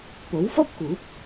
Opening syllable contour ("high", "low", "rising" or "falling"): rising